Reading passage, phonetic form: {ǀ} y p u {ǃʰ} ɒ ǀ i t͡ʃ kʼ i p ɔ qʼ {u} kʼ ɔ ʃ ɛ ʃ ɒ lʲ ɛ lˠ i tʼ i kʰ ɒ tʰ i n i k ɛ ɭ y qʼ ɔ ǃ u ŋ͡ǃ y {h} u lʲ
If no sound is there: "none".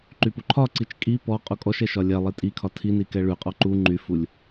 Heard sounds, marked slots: ǃ, ǃʰ, u, f

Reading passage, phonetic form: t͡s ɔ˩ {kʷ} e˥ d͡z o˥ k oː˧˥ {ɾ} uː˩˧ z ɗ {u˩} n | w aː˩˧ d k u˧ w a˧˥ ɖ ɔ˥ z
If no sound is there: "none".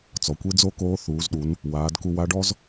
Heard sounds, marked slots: kʷ, θ, u˩˧

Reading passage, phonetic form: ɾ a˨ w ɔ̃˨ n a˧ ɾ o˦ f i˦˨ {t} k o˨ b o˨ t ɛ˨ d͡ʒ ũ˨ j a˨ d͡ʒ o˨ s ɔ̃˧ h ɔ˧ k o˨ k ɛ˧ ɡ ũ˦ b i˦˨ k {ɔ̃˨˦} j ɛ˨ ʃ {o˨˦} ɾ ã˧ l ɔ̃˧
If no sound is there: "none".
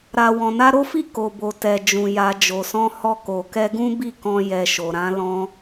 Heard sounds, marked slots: none, ɔ̃˧, o˨

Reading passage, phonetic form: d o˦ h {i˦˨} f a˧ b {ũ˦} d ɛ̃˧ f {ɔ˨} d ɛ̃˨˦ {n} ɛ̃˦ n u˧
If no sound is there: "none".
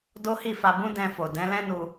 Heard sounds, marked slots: i˦˨, ũ˦, o˨, l

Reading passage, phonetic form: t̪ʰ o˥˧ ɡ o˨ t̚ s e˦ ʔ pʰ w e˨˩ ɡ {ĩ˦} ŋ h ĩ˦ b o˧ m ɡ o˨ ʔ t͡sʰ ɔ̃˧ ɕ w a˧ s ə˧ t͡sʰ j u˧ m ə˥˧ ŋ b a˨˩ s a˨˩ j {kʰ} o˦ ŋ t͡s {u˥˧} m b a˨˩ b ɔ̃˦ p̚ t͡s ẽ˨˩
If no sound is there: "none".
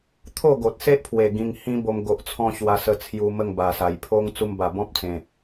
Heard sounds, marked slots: ĩ˧, pʰ, u˧

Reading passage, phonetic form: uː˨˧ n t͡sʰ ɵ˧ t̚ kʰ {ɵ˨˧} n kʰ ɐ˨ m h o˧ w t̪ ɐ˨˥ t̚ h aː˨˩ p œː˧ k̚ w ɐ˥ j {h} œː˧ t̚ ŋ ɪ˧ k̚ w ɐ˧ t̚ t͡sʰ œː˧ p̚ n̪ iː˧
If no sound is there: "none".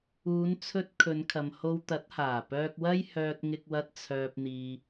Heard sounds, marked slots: ɵ˨˧, h

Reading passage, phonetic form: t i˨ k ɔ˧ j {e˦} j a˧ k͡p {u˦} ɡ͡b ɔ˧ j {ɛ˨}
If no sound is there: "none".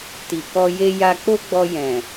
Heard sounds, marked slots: e˦, o˦, ɛ̃˨

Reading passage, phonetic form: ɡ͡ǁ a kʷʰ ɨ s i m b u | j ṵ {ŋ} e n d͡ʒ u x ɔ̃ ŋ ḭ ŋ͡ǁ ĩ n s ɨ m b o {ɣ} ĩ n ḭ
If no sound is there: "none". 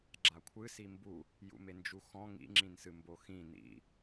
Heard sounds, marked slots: m, x

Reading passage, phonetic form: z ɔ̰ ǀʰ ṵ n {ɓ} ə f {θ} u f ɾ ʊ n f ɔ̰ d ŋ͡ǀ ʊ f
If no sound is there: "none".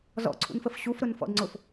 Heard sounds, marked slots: f, ɕ

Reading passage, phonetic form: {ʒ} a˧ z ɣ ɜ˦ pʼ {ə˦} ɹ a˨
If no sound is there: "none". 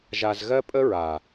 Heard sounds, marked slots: ʒ, ə˦

